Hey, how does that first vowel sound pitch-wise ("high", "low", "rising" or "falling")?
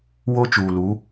high